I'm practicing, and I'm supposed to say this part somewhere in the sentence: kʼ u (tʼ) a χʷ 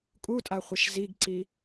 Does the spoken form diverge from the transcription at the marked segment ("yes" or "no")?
no